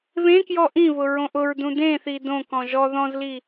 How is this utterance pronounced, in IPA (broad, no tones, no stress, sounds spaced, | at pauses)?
β ẽ k j ɔ ʔ ĩ β ʊ ɹ õ ʔ ʊ ɹ d ũ d ẽ θ i d õ k ɔ̃ ʒ ɔ ð ɔ̃ z l i